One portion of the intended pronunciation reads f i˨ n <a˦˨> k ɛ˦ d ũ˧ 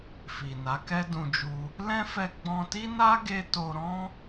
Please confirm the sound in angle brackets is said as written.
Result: no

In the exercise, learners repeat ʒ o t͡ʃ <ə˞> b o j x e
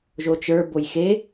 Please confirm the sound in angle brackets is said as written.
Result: yes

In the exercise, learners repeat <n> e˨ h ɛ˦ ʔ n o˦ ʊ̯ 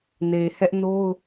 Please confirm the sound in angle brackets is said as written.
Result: yes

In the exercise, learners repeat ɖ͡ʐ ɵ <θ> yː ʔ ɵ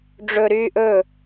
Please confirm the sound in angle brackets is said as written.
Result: no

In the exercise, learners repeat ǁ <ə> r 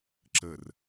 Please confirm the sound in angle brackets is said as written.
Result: yes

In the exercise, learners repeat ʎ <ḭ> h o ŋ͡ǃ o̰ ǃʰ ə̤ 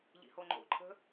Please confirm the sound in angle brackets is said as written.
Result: yes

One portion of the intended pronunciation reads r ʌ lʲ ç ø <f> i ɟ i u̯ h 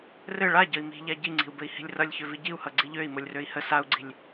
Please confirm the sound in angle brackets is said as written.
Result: no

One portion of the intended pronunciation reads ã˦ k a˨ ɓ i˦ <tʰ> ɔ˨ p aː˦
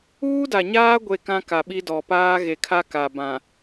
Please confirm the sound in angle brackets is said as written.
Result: no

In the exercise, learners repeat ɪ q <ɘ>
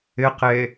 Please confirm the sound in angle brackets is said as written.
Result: no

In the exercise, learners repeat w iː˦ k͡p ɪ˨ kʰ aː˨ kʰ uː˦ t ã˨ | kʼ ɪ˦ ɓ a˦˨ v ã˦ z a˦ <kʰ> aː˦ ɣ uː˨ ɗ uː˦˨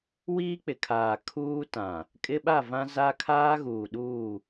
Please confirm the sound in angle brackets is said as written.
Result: yes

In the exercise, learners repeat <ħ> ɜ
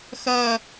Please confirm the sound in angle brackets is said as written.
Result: no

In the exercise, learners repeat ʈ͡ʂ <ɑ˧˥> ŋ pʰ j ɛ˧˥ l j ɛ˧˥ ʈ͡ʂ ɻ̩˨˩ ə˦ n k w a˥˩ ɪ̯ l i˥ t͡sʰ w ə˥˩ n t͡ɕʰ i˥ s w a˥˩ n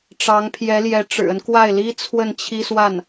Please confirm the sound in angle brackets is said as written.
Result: yes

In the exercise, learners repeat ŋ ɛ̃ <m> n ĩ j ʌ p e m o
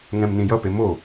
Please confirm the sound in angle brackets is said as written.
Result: yes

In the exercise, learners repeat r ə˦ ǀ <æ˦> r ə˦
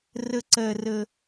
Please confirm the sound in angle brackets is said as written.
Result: no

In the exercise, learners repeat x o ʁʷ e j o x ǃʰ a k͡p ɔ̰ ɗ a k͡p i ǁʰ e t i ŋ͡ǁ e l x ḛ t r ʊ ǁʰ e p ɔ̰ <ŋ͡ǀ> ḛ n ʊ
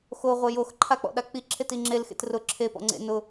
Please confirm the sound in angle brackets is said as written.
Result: yes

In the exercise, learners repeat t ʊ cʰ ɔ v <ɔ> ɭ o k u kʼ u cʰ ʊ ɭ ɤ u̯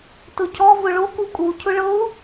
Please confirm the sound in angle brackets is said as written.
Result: no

